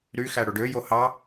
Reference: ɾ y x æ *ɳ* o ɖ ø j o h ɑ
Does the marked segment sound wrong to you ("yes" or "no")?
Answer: yes